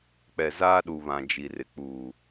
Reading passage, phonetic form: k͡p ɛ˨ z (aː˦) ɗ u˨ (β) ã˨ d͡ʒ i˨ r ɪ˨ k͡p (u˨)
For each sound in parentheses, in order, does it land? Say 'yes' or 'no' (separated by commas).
yes, yes, no